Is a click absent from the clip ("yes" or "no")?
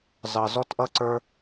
no